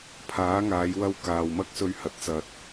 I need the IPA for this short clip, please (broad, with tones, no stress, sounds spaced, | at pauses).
pʰ aː˨˥ ŋ aː˨˧ j w ɐ˧ w k aː˨ w m ɐ˥ k̚ s ɵ˧ ɥ h ɐ˨ t̚ t͡s ɐ˨ t̚